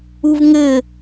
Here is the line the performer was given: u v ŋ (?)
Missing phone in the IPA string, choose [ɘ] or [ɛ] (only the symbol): ɘ